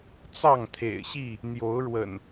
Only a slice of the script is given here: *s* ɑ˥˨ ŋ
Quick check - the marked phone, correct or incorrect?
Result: incorrect: t͡s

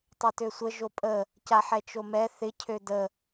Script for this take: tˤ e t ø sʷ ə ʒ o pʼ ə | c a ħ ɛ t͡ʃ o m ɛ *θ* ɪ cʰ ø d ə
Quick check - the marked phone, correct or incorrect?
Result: correct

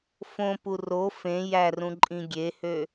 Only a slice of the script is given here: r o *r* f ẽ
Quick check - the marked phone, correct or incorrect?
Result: incorrect: none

